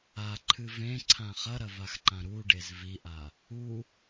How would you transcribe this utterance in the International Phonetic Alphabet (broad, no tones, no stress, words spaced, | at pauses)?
aǃʰɨ vẽǀʰã χɐɾɐvaxǃã ɾuɖez viʔa | u